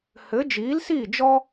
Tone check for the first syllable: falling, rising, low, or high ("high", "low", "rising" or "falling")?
rising